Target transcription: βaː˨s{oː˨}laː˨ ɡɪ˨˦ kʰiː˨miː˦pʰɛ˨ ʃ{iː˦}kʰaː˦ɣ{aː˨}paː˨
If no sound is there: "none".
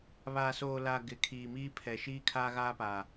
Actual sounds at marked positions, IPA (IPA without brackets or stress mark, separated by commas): oː˨, iː˦, aː˦